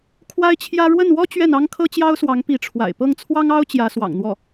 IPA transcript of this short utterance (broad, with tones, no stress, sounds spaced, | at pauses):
kʰ w a˥ ɪ̯ t͡ɕʰ j ä˥ ɻ w ə˥˩ n w ɔ˥ t͡ɕ ɥ ɛ˥˩ n ɑ˥ ŋ kʰ ɤ˥ t͡ɕ j ɑ˥ ʊ̯ s w ɑ˧˥ ŋ p i˧˥ ʈ͡ʂʰ w a̰˨˩ ɪ̯ p ɤ˥˩ ŋ t͡sʰ w ɑ˥ ŋ ɑ˥ ʊ̯ t͡ɕ j ä˧˥ s w ɑ̰˨˩ ŋ n̪ w ɔ˥˩